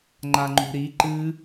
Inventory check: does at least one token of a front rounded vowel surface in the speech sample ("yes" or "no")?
no